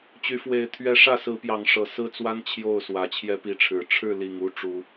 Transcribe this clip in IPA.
t͡ɕ y˨˦ f w e˨˦ ɪ̯ t̪ʰ ɥ ɛ˨˦ ʂ ä˥˨ s ɹ̩˨˦ p j ɑ˨˦ ŋ ʂ ɤ˨˩ s ɹ̩˦ t͡s w a˦ n t͡ɕʰ j o˥˨ ʊ̯ s w ä˨˩ t͡ɕʰ j ɛ˦ p i˨˦ ʈ͡ʂʰ ɻ̩˨˩ ʈ͡ʂʰ ɻ̩˥˨ l i˨˩ ŋ u˥˨ ʈ͡ʂ u˨˦

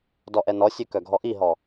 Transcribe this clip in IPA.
d ɔ ʔ ɛ n ɔ sʲ ø k œ ɡʱ ɔ ʔ i ɦ ɔ

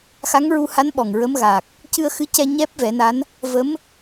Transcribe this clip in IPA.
x a˧˥ ŋ ɹ u˧ h a˧˥ n ɓ ɔ˨˩ ŋ ɹ ə˧˥ m ɣ a˨˩ k̚ | c ɨ˧ ə̯ x ɨ˧˥ c ɛ˧ ɲ ɛ˦˥ p̚ v ɛ˨˩˦ n a˧˥ n | v ə˧˥ m

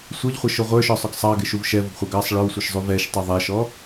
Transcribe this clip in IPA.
sʷ ʌ ʎ χʷ ə ʃ ʊ ʁʷ ə˞ ʃ ɔ sˤ ʊ ɡ sˤ ɑ ɡ ɪ ʃ u v ʃ ɛ v ʊ ɡ χʷ ɛ ɡ ɑ sˤ ɭ ə˞ w sʷ ʌ ʃ zˤ u v ɛ ʃ tˤ ʌ ðˤ ɛ ʃ ɔ

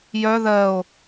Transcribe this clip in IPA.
j œ ð ɜ o̯

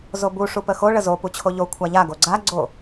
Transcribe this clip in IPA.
z o b u ʂ u p ə x o ɭ ə z o p u t͡ɕʰ o ʎ o kʷʰ a ʎ a ɡ o ɡ͡ǀ a ɡ͡ǀ o

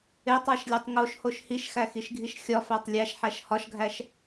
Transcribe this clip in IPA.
e tˤ æ ʃ lʲ ɒ tˤ ŋ o ʃ h o ʃ h i ʃ x æ x i ʃ ɡʱ i ʃ xʲ ɒ f æ tˤ lʲ æ ʃ ħ æ ʃ h ɒ ʃ ɡʱ æ ʃ

